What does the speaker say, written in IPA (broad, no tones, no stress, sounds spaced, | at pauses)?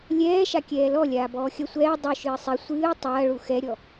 lʲ ɛː ʃ a kʲ ɛː l ɔ lʲ aː b ɔː xʲ ɐ sʷ ɛː dˤ u ʃ ɨː sˤ i sʷ ɨː tˤ ɐː ɭ u x ɛ ɾʲ ɔ